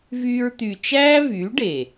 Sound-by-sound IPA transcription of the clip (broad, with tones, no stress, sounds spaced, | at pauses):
v yː˧ ɹ t̪ y˨ t͡ʃ æː˦ v yː˨˦ ɖ eː˨